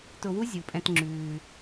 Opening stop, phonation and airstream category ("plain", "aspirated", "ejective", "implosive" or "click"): plain